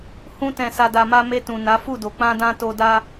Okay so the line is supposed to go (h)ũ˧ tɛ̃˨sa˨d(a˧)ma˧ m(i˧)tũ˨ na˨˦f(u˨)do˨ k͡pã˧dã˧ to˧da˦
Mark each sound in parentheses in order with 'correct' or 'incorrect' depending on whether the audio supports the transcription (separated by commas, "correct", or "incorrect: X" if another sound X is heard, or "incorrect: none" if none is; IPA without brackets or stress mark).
correct, incorrect: a˨, incorrect: e˧, incorrect: u˦˨